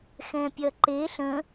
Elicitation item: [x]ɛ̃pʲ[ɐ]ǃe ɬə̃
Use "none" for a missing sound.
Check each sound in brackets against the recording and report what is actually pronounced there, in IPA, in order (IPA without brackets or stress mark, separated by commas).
x, ɐ